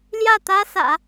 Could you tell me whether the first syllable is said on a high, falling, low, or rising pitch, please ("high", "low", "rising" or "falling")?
falling